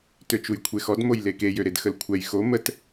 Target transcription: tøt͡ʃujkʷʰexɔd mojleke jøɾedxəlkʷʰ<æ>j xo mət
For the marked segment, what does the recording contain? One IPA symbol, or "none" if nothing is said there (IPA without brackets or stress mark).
ɛ